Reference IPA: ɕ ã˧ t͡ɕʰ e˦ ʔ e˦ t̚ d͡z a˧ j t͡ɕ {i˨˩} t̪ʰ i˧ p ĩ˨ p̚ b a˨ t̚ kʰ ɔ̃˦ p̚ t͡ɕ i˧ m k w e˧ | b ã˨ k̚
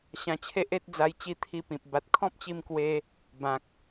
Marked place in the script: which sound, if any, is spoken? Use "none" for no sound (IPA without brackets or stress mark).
i˧